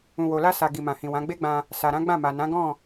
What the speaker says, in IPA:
ũ˨wo˨la˧sa˨ ɡi˨mã˨hĩ˨wã˨˦ ɡ͡be˦ɡ͡bã˧ | sa˨ɾã˨˦ ɡ͡bã˦˨ma˨ nã˨˦ɡɔ̃˦˨

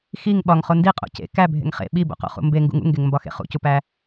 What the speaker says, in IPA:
xiŋ ɓɒŋχo ndiqʼo̰ cḛ kæbʱḛŋ χḛ ɓibo̰qo̰χṵ mbeŋɡṵŋ ṵŋɡeŋmbɒxḛ χṵcupæ

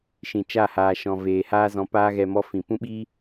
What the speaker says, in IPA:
ʃĩ˨ t͡ʃa˦˨haː˨ʃɔ̃˨ veː˨haː˦zɔ̃˧paː˦ ɣɛ˧mɔ˦fĩ˨ pũ˦ɓiː˦

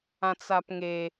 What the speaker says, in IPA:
ãt͡sapŋe

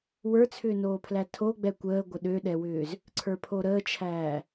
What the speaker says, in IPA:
wə˞t͡sʰʏːnoːpʰlæ tʰo ɡ͡bɛkʷəː ɡʷəɗøɗɛwʏːz | ǀʰə˞pʰoɾəːt͡ʃʰæː

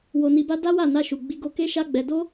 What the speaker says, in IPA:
wo˧ni˧ba˦ da˦wa˦˨na˧ʃu˨ ɡ͡bi˧ɡo˧ ke˦ ʃa˦ɡ͡bɛ˧ do˦

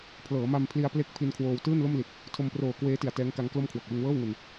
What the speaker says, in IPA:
pʰlɤː˩˦ma˧mpʰli˧a̯ ple˦˥k̚ pʰi˧nkʰwoː˧w tɯː˥˩nlo˥˩mli˨˩t̚ | tʰo˧mproː˨˩ kweː˦˥ti˨˩a̯ tɛː˦˥ŋka˦˥ŋklo˥˩mkʰwo˨˩k̚ wɯ˧ŋwɤː˥˩wŋu˧n

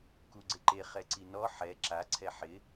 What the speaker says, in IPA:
kuɡ͡ǀɪǃe χɛǀinɔ ħɛ ǁaǀʰɛ ħɪ

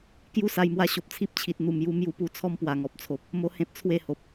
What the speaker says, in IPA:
kju˥˧sa˧jmwa˧ ɕo˨p̚t͡sʰi˦p̚t͡ɕʰi˨t̚ n̪u˨˩mju˧ mju˧pu˧ t͡sʰɔ˦mpwa˨˩ŋɔ˨p̚t͡sʰo˨p̚ | mo˦hẽ˦p̚ t͡sʰwe˥˧ho˨p̚

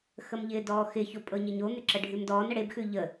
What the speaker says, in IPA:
xəmʎɪːdɔːxɪ çopʼɤɲɪɲo n̪ɪǁəɖʱʉmdɔːn əɽeb xʉʎə

